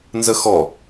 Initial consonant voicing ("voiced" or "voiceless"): voiced